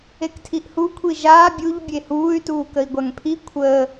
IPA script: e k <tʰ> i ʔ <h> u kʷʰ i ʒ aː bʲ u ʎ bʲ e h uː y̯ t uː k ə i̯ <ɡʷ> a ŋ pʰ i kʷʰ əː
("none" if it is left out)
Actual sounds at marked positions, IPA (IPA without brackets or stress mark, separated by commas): tʰ, h, ɡʷ